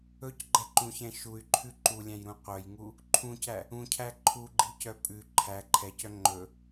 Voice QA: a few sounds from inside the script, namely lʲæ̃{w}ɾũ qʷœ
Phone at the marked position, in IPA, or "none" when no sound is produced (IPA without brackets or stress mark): j